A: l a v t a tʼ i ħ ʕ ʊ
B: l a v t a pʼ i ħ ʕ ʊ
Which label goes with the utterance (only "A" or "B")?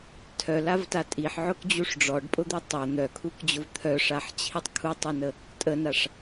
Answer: A